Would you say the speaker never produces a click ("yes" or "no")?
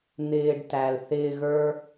yes